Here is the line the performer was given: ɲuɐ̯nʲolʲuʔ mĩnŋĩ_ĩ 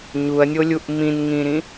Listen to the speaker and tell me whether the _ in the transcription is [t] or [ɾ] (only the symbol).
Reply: ɾ